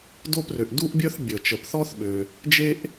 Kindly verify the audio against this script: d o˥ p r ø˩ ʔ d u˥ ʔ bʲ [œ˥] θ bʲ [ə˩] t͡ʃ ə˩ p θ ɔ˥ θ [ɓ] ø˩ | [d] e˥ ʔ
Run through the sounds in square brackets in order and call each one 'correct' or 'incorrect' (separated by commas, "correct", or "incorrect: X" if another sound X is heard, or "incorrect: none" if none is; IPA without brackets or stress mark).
correct, correct, correct, incorrect: d͡ʒ